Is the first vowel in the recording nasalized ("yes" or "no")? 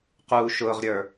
no